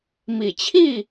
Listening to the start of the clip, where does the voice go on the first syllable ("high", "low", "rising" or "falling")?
low